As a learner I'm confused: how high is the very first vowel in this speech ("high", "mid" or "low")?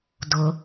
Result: high